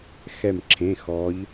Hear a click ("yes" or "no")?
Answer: yes